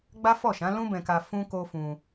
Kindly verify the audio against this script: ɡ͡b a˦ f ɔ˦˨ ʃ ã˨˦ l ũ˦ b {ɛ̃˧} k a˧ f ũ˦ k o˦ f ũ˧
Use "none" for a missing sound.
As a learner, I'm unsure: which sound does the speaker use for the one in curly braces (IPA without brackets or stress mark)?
ɛ̃˧